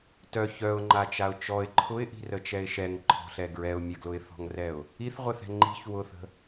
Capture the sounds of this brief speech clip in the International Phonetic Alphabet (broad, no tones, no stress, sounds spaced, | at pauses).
t œ ç œ ʊ̯ ŋ͡ǃ a t͡ʃ a ʊ̯ t͡ʃ ɔ ɪ̯ ǃʰ ʊ ɪ̯ ʔ i̤ r ə t͡ʃ ɛ ɪ̯ ʃ ɛ ŋ ǃʰ ɔ̤ ɬ ɛ ɡ ɹ ɛ ʊ̯ mʲ ə ɡ l ʊ ɪ̯ θ ɔ̤ ŋ r ɛ ʊ̯ | i θ ʁʷ ɛ θ ɛ̤ ŋ͡ǃ i̤ ç w ʊ θ ə̤